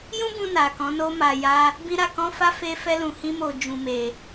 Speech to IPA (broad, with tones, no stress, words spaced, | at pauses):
jũ˦bũ˧na˨ kɔ̃˨˦no˦ma˧ ja˦ | bĩ˦ ɾa˦ kɔ̃˦fa˦ fe˦fɛ˦lũ˧hĩ˦ mo˧d͡ʒũ˧me˧